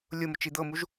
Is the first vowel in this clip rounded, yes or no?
yes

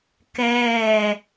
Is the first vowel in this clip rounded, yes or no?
no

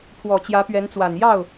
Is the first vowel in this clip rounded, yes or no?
yes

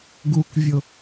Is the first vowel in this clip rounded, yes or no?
yes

